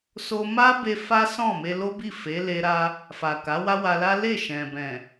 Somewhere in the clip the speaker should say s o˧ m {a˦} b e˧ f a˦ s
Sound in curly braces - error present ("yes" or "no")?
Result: no